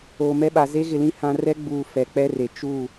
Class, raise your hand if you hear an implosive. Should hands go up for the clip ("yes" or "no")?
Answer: yes